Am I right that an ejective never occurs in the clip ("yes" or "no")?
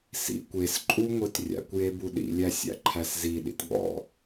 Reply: no